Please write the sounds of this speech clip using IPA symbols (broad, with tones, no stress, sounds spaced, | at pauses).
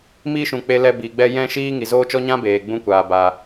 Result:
m iː˦ ʃ ũ˨ k͡p e˧ l ɛ˧ b i˨ ɡ͡b ɛ˦ j ɛ̃˦ ʃ iː˦ ŋ i˨ z oː˦ t͡ʃ ɔ˦ ɲ ã˦ b eː˨ ɡ͡b ũ˧ kʷ aː˨ b aː˨